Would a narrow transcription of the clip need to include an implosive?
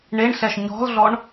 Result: no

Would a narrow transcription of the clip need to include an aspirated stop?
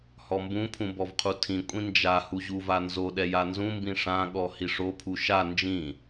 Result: yes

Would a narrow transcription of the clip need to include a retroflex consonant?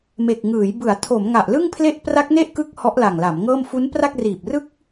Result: no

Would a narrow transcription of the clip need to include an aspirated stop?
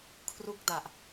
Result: yes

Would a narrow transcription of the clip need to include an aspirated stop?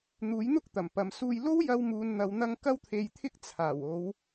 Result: yes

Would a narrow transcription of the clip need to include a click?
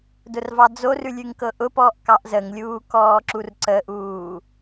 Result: yes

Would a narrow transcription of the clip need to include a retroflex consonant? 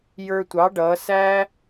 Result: yes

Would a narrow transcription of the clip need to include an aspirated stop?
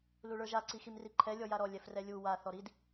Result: yes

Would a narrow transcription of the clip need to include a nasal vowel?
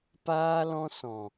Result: yes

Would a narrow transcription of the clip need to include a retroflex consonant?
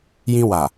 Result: no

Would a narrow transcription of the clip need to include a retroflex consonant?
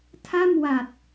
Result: no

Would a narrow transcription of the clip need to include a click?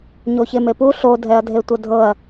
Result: no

